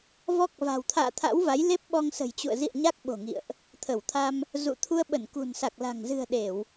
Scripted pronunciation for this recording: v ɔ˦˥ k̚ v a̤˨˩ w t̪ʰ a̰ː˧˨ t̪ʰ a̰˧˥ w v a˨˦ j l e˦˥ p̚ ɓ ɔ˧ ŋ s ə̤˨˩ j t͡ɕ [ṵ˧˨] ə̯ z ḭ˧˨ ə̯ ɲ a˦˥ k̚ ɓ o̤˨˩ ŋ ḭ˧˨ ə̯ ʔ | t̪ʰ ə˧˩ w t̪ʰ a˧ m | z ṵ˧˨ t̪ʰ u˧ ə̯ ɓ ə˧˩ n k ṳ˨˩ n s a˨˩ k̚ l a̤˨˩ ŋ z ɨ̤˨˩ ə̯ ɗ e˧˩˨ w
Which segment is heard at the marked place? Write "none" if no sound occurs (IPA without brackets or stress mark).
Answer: ṵ˧˨